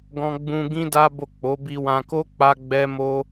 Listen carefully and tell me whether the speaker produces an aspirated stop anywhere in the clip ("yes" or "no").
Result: no